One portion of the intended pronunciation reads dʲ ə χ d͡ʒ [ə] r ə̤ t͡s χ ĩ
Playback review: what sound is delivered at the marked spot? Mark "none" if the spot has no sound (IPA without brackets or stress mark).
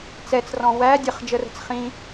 ə